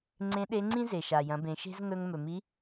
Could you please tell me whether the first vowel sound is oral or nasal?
nasal